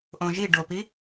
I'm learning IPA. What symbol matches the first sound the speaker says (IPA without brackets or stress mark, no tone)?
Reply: ʔ